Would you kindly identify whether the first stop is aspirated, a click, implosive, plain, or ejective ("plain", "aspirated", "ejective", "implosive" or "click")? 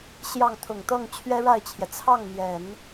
aspirated